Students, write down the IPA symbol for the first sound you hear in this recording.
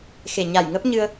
x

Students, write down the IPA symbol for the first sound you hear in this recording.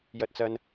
j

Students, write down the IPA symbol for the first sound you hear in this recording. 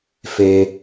f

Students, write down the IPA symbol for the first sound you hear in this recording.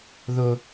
ð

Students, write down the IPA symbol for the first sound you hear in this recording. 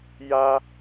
j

